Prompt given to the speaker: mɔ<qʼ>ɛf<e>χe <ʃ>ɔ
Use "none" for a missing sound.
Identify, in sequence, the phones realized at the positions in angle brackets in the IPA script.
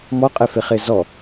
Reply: qʼ, e, z

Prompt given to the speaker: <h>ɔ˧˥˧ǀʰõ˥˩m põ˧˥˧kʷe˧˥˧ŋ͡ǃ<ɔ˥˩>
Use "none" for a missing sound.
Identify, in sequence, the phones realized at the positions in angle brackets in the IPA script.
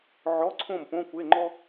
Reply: ʕ, ɔ˥

